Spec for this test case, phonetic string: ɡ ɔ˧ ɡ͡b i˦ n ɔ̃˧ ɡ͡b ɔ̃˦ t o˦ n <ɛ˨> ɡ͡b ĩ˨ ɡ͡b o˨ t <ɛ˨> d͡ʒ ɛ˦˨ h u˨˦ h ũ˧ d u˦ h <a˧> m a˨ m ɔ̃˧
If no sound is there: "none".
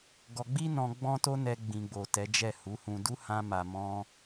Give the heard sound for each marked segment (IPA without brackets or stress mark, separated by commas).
ɛ˧, ɛ˨˦, ã˧